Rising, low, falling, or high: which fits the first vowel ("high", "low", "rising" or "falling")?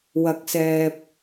rising